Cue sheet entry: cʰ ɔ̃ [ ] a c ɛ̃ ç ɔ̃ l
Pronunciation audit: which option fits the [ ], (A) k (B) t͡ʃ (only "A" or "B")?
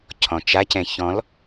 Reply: B